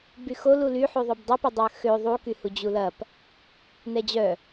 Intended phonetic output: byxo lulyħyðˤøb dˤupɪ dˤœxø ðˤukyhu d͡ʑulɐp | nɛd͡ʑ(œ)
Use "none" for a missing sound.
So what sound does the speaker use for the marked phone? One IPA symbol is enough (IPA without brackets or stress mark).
œ